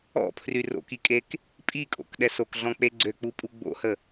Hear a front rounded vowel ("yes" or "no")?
yes